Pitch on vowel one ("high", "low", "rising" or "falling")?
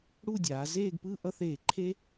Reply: falling